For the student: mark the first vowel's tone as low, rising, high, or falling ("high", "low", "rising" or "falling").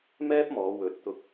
high